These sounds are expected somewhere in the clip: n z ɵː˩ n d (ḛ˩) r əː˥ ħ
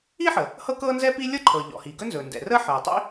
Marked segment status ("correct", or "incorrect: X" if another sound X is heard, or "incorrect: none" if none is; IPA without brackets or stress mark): incorrect: ɛ̰˩